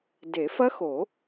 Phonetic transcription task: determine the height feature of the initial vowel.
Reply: mid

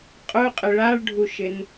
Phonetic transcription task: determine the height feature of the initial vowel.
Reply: high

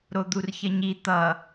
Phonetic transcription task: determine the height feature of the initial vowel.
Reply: mid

